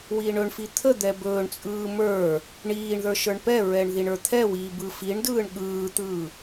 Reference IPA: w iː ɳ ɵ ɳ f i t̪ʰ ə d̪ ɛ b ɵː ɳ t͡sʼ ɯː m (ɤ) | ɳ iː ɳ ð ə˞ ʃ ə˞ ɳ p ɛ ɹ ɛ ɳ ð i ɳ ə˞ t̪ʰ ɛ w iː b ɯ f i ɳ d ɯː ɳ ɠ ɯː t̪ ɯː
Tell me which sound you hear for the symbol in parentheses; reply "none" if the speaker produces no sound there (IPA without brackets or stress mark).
ə˞